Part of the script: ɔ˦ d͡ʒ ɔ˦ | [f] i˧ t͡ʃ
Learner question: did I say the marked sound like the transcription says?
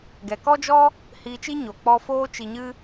no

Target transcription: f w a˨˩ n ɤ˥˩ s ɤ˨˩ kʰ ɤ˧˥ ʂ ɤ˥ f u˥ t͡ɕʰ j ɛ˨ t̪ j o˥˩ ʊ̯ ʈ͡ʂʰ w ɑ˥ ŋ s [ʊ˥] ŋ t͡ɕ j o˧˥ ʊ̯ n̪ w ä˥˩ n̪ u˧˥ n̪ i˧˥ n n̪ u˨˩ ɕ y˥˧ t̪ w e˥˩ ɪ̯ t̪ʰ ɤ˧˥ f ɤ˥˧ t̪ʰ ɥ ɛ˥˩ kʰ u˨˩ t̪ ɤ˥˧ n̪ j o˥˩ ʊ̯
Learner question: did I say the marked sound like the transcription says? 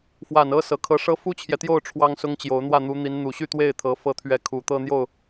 yes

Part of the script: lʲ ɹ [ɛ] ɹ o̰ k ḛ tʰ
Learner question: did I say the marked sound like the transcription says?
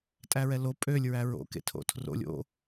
no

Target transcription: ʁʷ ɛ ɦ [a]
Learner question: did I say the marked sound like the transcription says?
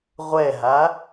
yes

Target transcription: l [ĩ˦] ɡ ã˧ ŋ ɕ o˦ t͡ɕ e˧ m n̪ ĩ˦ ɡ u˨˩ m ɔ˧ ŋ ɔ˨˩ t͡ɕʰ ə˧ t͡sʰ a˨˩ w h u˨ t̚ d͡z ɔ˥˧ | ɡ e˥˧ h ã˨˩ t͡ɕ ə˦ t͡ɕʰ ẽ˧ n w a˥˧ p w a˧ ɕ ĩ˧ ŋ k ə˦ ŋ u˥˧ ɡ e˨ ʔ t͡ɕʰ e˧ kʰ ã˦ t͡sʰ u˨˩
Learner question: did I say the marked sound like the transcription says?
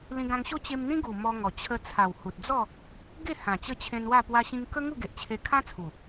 no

